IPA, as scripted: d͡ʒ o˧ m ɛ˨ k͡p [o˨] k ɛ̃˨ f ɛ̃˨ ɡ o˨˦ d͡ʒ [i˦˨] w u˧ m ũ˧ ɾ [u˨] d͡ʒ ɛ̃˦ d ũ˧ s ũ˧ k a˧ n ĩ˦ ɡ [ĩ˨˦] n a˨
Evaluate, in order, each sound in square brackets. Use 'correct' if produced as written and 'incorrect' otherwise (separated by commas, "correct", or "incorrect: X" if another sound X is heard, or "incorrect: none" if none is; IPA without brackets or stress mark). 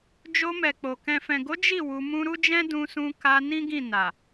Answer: correct, correct, incorrect: u˦, incorrect: ĩ˦˨